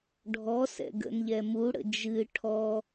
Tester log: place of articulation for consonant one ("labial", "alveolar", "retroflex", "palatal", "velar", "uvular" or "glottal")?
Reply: retroflex